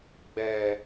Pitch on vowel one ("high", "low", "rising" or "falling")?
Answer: low